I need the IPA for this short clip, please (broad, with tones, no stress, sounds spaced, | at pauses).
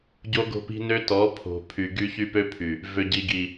ɟ o˦ ɡ o̤˦ p i̤˦ n ø˦ t ɔ˨˦ pʰ o̤˨ pʰ y˨ ɡ y˦ ç y˦ p ø˦ pʰ y˨ | v ø˨ ɟ i˨ ɡ i˨